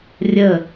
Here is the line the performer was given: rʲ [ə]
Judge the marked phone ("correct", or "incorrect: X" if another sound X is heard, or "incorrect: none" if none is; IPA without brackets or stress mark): correct